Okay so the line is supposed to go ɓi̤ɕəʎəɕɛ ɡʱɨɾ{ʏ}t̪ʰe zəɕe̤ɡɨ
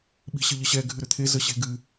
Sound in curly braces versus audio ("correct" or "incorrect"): correct